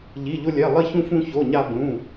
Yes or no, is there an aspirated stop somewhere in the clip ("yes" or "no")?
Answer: no